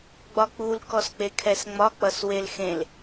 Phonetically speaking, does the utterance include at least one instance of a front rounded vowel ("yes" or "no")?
no